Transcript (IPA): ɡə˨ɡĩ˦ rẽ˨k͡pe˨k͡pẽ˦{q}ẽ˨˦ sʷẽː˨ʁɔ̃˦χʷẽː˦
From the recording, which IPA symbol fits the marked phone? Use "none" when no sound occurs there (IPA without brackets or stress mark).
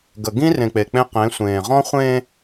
q